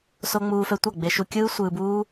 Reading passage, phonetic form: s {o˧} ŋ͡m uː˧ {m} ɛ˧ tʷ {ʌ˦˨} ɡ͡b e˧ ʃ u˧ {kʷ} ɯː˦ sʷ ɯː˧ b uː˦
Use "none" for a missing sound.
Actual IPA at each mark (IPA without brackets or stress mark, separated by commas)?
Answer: o˧, f, ʌ˦˨, kʲ